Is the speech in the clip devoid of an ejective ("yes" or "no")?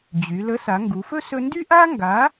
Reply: yes